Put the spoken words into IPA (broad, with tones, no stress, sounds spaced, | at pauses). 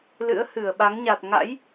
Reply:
l ɨ̰˧˥ ə̯ h ɨ˧˩ ə̯ ɓ a˨˦ ŋ ɲ a˨˩ t̚ ŋ a̰˧˥ j